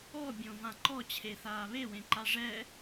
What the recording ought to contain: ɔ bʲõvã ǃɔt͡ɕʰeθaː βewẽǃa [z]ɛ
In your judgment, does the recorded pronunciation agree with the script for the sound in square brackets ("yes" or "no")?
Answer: no